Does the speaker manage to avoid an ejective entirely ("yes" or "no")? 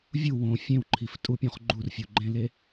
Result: no